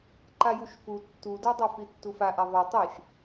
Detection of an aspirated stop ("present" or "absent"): absent